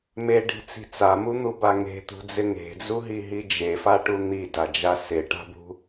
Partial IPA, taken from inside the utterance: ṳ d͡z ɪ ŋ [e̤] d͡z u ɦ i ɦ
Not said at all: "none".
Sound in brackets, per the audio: e̤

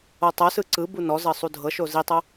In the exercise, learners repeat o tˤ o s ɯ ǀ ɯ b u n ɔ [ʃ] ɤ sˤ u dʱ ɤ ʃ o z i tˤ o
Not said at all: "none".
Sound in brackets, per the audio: z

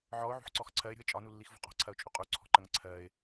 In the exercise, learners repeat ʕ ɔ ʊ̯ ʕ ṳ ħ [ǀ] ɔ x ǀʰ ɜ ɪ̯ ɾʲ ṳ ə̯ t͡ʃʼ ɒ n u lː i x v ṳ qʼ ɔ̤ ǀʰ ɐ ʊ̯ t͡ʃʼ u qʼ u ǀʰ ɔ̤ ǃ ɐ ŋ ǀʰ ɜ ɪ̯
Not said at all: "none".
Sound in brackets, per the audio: ǀ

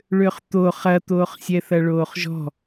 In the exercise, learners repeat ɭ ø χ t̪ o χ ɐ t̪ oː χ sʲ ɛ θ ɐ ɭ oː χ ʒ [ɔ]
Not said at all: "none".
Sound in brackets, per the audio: ɔ̤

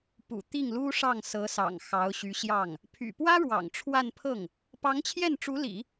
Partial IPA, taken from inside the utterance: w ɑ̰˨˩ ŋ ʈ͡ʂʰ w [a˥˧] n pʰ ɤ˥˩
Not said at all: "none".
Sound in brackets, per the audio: a˥˧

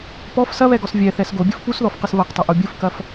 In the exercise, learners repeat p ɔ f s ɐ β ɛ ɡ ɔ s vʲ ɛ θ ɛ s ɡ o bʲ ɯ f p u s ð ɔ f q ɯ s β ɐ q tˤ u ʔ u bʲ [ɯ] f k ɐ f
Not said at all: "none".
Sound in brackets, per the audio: ɯ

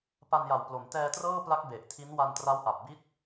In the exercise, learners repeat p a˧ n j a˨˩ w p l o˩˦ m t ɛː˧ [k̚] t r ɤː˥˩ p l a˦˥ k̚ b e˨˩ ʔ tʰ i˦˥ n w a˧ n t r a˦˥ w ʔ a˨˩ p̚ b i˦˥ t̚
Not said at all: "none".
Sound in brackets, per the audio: none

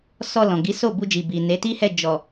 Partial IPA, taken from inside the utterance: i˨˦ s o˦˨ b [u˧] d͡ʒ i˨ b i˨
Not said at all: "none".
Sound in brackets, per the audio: u˧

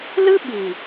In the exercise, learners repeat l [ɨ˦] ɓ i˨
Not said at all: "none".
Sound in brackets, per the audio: ɨ˦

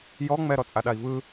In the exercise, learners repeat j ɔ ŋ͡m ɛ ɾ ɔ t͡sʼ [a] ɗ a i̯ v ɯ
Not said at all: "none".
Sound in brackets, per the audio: a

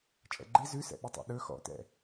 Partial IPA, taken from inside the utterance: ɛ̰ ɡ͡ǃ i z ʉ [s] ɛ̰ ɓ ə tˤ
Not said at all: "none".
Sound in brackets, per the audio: s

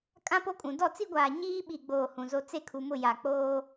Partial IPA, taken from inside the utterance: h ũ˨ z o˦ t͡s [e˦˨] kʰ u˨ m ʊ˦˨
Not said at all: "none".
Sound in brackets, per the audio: e˦˨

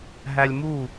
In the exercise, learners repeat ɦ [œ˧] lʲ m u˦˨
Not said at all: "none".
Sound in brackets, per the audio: æ˧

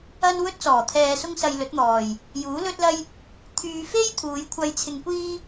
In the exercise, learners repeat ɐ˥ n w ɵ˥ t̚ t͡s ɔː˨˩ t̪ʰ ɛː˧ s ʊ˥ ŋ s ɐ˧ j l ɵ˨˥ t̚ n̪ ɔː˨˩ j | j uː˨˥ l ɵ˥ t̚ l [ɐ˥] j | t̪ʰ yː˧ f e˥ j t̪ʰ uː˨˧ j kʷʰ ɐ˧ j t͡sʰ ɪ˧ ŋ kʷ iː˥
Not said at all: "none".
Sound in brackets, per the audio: ɐ˥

